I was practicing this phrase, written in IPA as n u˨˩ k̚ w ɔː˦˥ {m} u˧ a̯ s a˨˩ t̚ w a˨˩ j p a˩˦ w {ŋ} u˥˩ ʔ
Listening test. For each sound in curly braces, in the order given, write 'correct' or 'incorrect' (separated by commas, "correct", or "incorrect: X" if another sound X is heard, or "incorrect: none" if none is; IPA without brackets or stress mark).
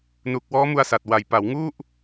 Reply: correct, correct